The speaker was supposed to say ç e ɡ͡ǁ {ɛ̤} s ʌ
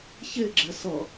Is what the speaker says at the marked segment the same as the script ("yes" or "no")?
no